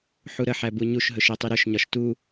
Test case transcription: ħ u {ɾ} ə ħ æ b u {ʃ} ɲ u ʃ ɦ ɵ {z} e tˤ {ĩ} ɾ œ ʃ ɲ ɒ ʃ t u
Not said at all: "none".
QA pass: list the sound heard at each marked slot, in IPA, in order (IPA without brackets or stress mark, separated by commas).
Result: ɾ, none, ʃ, i